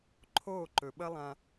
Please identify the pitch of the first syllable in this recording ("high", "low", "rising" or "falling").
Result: falling